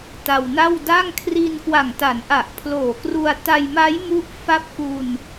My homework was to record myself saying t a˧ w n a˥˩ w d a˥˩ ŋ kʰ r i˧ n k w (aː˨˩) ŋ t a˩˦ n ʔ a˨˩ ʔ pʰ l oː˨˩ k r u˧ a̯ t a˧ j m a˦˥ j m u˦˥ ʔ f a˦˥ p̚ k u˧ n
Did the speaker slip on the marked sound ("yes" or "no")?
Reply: yes